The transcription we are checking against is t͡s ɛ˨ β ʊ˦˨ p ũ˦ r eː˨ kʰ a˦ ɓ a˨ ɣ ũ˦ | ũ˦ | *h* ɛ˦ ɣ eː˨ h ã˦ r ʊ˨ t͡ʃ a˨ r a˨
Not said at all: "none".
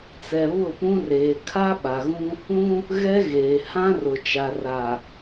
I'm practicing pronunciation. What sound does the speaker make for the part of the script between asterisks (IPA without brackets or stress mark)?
ɣ